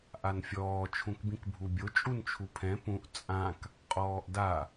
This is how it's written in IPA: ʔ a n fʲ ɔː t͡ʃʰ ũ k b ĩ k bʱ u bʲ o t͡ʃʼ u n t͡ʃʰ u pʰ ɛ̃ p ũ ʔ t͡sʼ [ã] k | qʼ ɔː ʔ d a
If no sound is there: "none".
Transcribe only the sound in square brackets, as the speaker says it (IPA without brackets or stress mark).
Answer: ã